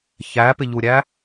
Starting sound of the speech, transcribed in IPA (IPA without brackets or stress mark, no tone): ç